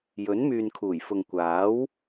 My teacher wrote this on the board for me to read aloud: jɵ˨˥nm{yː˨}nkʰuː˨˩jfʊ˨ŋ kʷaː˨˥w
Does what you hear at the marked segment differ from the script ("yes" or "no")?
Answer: no